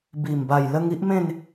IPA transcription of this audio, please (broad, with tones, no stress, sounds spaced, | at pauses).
b i˨˩ m b a˨˩ j l ə˧ ŋ i˦ ʔ m ẽ˥˧ n